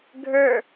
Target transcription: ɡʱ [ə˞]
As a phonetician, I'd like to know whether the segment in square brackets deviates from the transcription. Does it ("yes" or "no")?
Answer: no